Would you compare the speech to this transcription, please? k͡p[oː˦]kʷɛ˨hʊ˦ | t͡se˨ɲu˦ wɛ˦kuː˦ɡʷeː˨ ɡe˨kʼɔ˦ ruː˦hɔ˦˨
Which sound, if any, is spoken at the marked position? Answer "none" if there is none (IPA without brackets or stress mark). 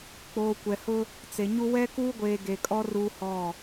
oː˨